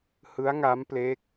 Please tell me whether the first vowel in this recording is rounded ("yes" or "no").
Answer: no